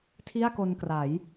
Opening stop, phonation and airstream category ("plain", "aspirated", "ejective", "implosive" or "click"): aspirated